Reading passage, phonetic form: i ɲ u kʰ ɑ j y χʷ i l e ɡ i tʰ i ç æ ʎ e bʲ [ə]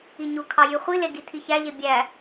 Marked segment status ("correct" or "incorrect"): incorrect